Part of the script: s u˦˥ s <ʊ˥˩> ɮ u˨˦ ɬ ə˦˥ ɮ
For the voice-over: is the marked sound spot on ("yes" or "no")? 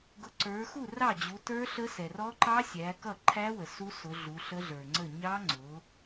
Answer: no